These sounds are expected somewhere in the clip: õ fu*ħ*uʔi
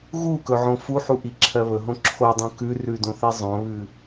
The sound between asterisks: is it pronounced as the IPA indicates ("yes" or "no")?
yes